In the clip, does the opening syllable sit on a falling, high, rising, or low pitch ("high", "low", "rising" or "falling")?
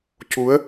rising